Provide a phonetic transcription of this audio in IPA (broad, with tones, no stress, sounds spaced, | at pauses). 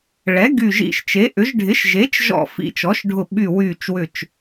ɭ ɛ˩˥ ɡ y˧˩ ʒ ḭ˧˩ ʃ t͡ʃ e˩˥ ʔ ʏ˩˥ ʒ ɖʱ ɪ˩˥ ʃ ʒ e˩˥ t͡ʃ ʒ ɔ̰˧˩ f ḭ˧˩ t͡ʃ ɔ˩˥ ʃ ɖʱ ʊ˧˩ ɓ y˧˩ w yː˧˩ t͡ʃ w ʏ˧˩ t͡ʃ